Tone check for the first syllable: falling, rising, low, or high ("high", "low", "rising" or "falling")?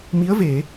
rising